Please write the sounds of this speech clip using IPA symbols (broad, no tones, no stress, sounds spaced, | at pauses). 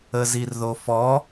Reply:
ə z i r ð o f ɔ